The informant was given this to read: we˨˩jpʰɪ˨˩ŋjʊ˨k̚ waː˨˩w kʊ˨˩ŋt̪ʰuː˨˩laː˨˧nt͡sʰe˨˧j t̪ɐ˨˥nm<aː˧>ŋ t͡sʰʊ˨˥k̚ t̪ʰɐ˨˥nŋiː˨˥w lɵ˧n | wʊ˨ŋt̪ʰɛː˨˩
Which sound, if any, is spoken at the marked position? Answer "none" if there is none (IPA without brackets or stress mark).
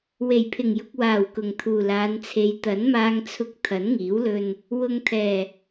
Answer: aː˧